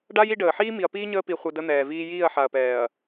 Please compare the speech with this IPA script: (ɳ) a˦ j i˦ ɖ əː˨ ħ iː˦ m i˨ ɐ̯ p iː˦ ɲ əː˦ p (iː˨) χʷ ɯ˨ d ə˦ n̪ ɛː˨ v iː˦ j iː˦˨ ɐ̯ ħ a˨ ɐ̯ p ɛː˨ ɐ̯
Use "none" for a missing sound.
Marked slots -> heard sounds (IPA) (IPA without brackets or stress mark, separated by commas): ɖ, i˨